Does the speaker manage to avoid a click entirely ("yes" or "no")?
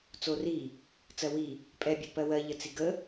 yes